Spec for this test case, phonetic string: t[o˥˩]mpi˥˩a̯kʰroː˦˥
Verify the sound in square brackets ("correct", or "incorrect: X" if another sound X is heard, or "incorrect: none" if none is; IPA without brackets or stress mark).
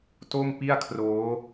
correct